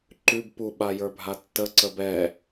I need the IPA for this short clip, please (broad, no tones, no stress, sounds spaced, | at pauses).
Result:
ǃ ʉ b p u ɓ a j ə˞ bʱ a tː ə ǀ ə b ɛ